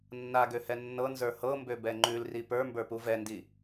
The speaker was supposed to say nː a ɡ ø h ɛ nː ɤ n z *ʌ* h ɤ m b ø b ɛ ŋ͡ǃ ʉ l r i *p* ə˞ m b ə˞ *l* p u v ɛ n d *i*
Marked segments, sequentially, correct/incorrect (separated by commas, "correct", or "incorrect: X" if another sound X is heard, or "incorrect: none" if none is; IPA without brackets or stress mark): incorrect: ə˞, correct, incorrect: none, correct